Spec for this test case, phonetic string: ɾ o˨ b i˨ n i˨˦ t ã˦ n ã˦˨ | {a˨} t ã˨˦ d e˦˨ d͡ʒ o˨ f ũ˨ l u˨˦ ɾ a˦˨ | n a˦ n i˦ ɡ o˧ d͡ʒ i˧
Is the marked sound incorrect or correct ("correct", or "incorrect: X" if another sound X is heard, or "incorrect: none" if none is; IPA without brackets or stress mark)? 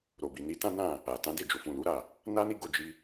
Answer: correct